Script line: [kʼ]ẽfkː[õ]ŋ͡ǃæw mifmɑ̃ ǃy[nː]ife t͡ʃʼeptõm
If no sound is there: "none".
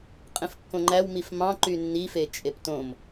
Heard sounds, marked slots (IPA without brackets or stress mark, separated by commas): qʼ, õ, nː